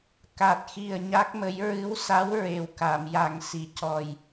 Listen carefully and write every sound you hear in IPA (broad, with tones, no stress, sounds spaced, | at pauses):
k a˨˩ t̚ x i˨˩ ə̯ ɲ a˦˥ k̚ m ə˧˥ j ɹ ɨ˧˥ w s a˧˥ w ɹ e˨˩ w k a˨˩˨ m j a˨˩ ŋ s i˨˩˨ c ɔ˨˩ j